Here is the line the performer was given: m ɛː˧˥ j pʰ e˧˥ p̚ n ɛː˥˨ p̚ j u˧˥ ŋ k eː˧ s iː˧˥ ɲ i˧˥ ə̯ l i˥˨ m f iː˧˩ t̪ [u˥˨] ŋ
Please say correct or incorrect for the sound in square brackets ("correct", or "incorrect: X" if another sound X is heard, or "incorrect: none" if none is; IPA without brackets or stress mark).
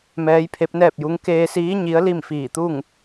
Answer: correct